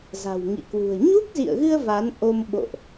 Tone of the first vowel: low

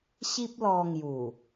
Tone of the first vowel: high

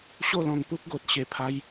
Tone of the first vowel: falling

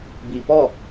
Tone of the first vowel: low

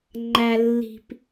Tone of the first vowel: low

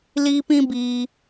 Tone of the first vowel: high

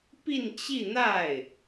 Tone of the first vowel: falling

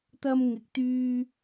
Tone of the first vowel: high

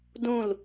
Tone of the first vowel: falling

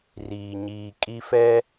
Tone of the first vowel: low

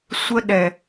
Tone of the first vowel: high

